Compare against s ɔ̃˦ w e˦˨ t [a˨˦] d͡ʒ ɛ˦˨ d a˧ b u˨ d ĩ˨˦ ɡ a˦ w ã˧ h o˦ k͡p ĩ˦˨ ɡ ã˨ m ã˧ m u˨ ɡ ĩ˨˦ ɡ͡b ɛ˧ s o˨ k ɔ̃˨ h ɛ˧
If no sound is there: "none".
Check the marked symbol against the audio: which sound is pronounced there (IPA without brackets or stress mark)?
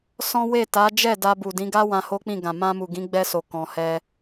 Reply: a˨˦